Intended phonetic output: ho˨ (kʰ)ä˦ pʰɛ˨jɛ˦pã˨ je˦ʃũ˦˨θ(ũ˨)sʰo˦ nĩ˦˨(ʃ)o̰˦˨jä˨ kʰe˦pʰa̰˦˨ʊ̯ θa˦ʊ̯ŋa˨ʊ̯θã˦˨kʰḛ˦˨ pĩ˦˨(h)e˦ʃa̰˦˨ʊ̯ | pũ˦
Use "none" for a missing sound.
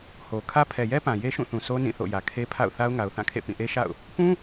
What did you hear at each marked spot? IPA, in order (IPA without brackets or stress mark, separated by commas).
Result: kʰ, ũ˨, θ, ʔ